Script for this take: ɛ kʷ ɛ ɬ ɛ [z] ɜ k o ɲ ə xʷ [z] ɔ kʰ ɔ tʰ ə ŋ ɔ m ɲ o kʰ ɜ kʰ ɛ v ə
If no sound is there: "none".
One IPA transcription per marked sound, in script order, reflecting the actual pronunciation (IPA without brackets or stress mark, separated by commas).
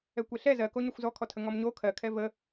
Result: z, z